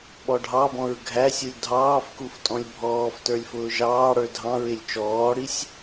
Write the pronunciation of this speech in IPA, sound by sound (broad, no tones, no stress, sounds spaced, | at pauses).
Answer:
ɓ ɔ ɖʱ ɑ b ɔ̃ ɹ ɡʱ æ sʲ u lʲ dʱ ɑː f k u f tʼ ɔ̃ lʲ bʱ ɔː f t ə˞ lʲ f ʊː ʒ ɑː ɽ ə˞ dʱ ɑ̃ ɹ ɪ lʲ t͡ʃ ɔː ɽ i sʲ